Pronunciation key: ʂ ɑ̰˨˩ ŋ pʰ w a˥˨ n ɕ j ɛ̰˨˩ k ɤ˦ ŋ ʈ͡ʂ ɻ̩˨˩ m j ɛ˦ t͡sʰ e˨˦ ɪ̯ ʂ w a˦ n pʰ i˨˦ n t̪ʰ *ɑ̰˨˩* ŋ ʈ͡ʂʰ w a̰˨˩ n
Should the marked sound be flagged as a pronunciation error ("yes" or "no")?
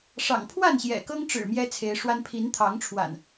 yes